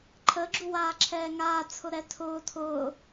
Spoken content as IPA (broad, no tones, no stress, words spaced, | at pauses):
ǃʰəɡ͡ǁu waːǁʰɛːŋaːt͡sʰʊ ɾɛtʰʊː tʰʊː